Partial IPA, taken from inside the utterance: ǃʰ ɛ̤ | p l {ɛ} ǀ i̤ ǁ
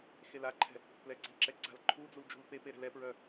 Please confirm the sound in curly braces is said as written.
yes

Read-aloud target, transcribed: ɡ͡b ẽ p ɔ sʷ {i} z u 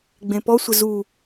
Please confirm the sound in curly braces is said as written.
no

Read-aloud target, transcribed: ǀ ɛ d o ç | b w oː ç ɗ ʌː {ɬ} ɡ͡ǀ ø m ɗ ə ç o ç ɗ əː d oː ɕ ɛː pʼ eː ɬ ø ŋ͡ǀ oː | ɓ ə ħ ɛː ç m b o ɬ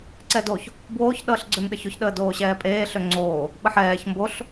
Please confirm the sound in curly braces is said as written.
yes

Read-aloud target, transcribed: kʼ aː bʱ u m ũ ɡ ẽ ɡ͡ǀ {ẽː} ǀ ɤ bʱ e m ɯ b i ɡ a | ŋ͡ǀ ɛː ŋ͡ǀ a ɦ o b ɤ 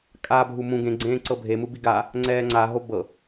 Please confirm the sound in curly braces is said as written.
yes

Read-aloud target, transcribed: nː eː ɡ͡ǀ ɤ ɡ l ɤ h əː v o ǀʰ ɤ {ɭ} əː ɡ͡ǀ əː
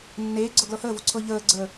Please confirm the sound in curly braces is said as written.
no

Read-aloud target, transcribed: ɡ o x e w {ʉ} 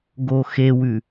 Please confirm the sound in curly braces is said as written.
yes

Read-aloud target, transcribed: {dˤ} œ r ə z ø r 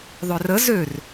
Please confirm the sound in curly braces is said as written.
no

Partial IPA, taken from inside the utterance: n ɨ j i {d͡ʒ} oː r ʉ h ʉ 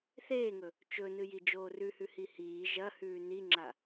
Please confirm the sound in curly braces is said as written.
yes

